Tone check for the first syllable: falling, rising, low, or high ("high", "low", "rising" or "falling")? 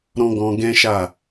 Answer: high